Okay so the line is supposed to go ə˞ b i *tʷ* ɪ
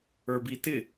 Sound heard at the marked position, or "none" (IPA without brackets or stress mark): t